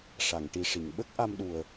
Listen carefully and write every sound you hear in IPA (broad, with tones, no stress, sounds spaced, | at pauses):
ʂ a˨˩˨ ŋ ʈ i˨˩ ʂ i˨˩˨ ŋ ɓ ə˦˥ k̚ ʔ a˧ m ɗ u˨˩ ə̯